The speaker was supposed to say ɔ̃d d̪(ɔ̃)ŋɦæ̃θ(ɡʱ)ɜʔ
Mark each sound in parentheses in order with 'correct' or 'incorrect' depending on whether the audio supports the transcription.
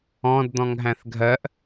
correct, correct

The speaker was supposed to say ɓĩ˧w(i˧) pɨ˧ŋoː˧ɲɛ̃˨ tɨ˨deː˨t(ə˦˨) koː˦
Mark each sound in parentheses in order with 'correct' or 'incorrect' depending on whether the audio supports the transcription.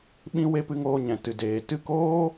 incorrect: e˧, incorrect: ɨ˦˨

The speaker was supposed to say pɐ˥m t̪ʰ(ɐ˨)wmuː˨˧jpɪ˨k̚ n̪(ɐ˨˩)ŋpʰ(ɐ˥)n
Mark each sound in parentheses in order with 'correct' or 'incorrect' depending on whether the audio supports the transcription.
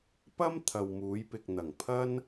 correct, correct, correct

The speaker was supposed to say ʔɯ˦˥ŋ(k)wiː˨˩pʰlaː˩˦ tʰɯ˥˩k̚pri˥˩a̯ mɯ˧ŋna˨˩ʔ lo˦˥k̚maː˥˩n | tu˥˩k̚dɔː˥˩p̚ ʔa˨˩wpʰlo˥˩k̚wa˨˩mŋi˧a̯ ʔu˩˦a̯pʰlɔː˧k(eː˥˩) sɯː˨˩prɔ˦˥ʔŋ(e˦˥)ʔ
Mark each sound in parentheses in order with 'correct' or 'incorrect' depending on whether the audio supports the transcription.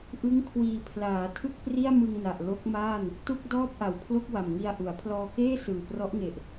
incorrect: kʰ, correct, incorrect: e˨˩

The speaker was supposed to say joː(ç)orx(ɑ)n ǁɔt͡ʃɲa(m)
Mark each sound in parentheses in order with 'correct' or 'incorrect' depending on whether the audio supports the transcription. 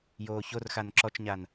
correct, incorrect: a, incorrect: n

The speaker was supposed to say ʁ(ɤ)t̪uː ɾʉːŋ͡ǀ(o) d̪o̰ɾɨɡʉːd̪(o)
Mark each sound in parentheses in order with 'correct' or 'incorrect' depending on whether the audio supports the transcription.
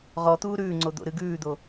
incorrect: ɔ, correct, correct

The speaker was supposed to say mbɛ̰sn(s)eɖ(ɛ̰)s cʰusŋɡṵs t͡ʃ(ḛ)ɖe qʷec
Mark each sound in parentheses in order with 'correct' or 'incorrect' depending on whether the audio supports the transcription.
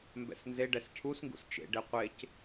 incorrect: z, incorrect: ɛ, correct

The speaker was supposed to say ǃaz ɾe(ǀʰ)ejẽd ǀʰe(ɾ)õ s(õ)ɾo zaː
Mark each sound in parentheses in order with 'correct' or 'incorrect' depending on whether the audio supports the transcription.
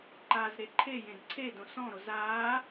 incorrect: ǃʰ, incorrect: d, incorrect: ɔ̃

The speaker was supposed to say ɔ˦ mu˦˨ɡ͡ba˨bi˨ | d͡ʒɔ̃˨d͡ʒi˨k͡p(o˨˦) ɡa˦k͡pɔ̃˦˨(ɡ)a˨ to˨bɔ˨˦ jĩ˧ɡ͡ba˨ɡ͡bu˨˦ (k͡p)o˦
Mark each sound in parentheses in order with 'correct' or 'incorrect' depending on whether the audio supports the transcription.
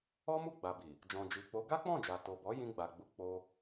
correct, incorrect: d͡ʒ, correct

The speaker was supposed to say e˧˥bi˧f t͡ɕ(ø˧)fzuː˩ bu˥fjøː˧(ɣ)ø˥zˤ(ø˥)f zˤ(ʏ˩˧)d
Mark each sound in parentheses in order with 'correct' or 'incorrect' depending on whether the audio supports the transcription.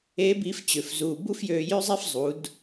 incorrect: ø˩, incorrect: j, incorrect: e˥, incorrect: u˩˧

